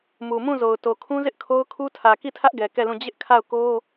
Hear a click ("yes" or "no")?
no